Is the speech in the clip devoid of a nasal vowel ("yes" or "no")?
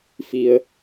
yes